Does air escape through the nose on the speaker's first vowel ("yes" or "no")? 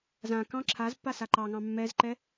yes